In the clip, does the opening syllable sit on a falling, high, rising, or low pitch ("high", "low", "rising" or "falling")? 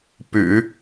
low